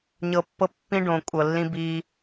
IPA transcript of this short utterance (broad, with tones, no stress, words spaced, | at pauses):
ɲɤ˨pːɤ˦ pːĩ˦ɖõ˨kʷʼɤ˨lːĩ˦ bi˦